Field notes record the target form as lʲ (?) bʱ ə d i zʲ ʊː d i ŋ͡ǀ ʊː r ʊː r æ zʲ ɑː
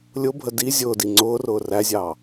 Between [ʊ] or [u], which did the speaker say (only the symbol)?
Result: ʊ